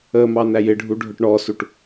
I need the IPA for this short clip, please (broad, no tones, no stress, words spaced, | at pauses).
əmɑ næjɪɖʱu ɖʱʊʈɳɔsuʈ